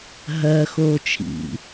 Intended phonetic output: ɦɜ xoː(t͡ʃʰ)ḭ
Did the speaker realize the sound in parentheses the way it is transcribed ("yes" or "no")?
yes